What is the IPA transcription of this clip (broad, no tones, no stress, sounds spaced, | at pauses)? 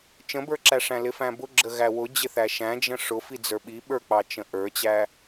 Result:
t͡ʃ ə̃ b ə˞ ǁ æ ʂ æ̃ l ɪ f æ̃ b ʊ ɡ͡ǁ ə ɣ æ w ʊ d͡ʑ ɪ θ æ ʃ æ̃ d͡ʒ ə̃ ʂ ʊ f i d͡z ə˞ ɓ i ɓ ə˞ k͡p ɑ t͡ʃ ə̃ ʔ ə˞ t͡ɕ æ